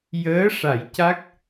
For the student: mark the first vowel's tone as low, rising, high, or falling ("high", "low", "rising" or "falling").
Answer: rising